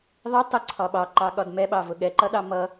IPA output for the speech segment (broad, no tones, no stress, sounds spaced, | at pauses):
ðˤ ɪ tˤ ə ǀʰ ɒ ɓ ɑ ǃ ɑ ɠ ɒ d m ɛ ɓ ɑ v ʊ ɠ ɛ ǃ ʌ ɗ ɑ m ʌ